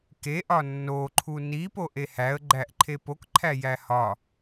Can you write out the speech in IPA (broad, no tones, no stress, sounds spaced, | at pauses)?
k e ʔ ɒ nː o ǃʰ u n i p o ʔ e h æ ə̯ ɡ͡ǃ æ ʔ ǃʰ e p o k ǃʰ æ j æ h ɒ